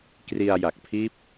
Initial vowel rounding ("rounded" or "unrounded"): unrounded